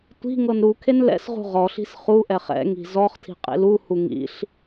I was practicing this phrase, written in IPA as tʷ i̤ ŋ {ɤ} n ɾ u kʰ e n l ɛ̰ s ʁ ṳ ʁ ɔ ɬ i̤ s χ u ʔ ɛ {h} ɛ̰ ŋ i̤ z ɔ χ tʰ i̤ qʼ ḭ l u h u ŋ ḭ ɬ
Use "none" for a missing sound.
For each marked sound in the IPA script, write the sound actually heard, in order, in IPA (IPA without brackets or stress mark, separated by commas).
ɤ, χ